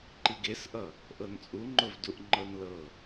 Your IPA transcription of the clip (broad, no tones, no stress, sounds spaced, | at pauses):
ǃ i ɡ e s ʔ ʌ | ʔ ɤ n t͡sʼ u ŋ͡ǃ ʊ v d u ʔ ŋ͡ǃ ɤ n l ɤ